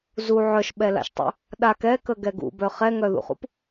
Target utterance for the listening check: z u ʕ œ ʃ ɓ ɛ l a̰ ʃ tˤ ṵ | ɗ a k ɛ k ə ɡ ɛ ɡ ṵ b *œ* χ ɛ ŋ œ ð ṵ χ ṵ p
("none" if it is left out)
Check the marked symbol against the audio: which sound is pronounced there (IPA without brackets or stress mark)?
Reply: œ